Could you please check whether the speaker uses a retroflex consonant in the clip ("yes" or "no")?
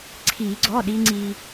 no